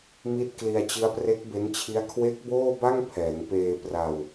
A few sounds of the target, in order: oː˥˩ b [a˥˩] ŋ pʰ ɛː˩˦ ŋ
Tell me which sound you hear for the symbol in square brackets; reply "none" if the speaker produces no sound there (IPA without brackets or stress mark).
a˥˩